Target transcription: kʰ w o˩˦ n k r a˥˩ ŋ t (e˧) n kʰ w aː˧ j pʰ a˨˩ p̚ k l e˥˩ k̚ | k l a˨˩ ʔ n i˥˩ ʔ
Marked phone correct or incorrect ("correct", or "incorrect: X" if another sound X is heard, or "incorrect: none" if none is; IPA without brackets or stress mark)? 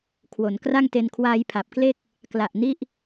correct